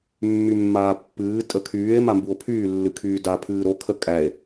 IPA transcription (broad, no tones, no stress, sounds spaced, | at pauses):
mː y mː aː pː ɨː tʼ ə kʰ yː e̯ m a m b u o̯ pʰ yː lː ɨ kʰ yː d a pʰ ɨː ɾ o kʰ ə kʼ æ e̯